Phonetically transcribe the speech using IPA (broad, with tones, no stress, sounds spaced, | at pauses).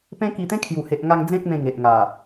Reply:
p ẽ˦ k i˧ t̪ ẽ˦ kʰ j u˨˩ h e˨ ʔ ŋ a˧ ŋ d͡z ẽ˦ k̚ m ẽ˧ ŋ e˨ ʔ ŋ a˨˩